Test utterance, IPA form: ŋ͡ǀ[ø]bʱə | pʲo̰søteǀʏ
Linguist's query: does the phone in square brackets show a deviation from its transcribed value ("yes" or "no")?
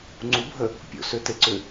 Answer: yes